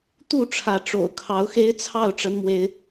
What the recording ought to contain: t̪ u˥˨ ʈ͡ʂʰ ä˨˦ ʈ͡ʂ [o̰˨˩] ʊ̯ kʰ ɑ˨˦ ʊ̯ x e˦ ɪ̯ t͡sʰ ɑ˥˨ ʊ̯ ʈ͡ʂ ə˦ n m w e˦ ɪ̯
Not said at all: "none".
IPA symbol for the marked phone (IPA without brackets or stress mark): o̰˨˩